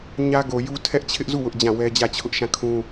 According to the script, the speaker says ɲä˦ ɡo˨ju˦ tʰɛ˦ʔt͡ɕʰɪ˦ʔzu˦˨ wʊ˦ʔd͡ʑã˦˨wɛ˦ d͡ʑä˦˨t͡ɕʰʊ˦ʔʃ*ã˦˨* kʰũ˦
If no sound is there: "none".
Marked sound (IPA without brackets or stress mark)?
ã˦˨